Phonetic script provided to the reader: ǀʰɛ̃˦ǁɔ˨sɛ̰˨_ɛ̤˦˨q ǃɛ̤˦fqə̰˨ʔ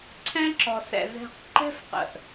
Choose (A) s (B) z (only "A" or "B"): B